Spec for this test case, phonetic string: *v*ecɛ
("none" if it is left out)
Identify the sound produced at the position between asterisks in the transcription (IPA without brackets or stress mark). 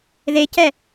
ð